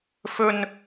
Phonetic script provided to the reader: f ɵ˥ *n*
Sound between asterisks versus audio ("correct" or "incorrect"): correct